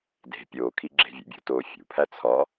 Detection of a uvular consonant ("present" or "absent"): absent